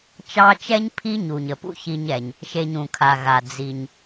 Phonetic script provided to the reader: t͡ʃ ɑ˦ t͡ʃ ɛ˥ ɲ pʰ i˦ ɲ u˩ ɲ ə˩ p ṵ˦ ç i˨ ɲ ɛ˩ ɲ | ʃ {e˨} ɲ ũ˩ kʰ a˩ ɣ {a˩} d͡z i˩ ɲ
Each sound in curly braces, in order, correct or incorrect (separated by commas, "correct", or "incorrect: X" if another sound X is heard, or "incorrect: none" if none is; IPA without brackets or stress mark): correct, correct